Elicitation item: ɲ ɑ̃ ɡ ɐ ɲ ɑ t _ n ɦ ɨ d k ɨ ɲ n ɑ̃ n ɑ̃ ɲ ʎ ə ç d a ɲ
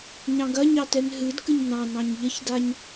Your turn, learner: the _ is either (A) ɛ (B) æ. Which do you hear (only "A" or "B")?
A